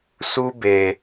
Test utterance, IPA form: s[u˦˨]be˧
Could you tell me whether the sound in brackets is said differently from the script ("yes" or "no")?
yes